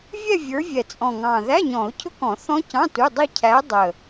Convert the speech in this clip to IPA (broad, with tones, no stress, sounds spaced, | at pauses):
vʲ ɛ˥˧ vʲ ə˞˨˦ vʲ ɛ˨˩ t͡sʼ ɔ̃˨˩ ŋ ɑ̃˨˩ ð æ˧˥˧ ɲ ɔ̃˨˩˦ ʊ̯ cʰ ʊ˦˥ k ɔ̃˨˩˦ θ ɔ̃˦˥ c ɑ̃˧˥˧ t u˧˥˧ dˤ i˥˧ cʰ æ˨˦ dˤ ə˨˩